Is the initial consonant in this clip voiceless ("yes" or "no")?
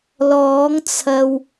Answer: no